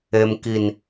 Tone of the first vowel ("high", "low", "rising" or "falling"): high